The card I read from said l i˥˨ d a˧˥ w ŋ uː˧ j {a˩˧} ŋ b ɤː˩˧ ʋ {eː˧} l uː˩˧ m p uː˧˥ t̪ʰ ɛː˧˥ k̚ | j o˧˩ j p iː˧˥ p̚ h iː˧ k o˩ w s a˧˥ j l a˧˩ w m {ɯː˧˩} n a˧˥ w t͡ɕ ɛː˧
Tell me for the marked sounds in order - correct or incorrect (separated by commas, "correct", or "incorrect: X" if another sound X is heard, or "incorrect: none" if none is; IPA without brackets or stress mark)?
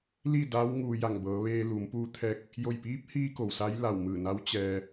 incorrect: a˧˩, correct, correct